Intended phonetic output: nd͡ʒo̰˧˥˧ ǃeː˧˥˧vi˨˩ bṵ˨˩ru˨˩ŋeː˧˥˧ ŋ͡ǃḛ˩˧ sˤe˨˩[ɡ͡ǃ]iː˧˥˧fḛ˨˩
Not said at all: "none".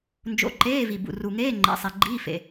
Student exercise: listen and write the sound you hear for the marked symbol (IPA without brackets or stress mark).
ɡ͡ǃ